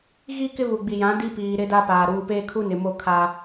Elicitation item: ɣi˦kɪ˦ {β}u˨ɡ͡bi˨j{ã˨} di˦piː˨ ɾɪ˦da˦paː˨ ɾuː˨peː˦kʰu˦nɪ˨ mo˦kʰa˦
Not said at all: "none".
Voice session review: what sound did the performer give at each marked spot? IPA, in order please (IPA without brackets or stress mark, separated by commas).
β, ã˨˦